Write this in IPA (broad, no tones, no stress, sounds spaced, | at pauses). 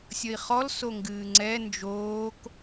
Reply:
sʲ ʌ i̯ χ ɔ l s o ŋ ɡ ɨː ŋ͡ǀ ɛ n d͡ʒ oː k